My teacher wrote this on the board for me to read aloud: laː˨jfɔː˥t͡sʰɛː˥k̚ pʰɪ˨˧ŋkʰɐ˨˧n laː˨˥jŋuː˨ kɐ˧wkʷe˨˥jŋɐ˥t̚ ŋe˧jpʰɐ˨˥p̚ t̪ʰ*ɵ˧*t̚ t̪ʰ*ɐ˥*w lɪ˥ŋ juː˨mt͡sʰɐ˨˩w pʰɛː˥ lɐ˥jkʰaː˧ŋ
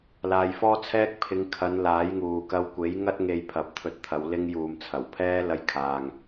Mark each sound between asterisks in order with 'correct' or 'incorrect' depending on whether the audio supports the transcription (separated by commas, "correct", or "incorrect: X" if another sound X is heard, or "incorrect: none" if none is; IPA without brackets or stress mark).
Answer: correct, incorrect: ɐ˨˧